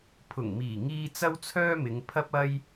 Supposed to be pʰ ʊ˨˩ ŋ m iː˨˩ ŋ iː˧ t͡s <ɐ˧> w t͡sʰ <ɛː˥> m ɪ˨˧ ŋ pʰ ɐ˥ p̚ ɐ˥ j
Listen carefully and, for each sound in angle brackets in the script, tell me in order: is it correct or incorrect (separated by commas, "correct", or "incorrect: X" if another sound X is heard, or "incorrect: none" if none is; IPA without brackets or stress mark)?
incorrect: ɐ˥, incorrect: œː˥